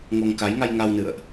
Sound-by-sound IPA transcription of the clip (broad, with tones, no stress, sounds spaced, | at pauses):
ŋ o˧ ŋ k a˨˦ j ŋ a˧ j ŋ a˧ w n ɨ̰˧˨ ə̯ ʔ